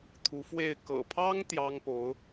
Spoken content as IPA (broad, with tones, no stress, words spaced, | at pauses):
t̪ʰu˧˥fwe˥˩ɪ̯ kɤ̰˨˩pʰɑ˥ŋ t̪jɑ˥ŋpo˧˥ʊ̯